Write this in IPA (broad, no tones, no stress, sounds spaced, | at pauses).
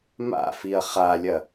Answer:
m a̰ f i ɐ̯ χ a lʲ ɐ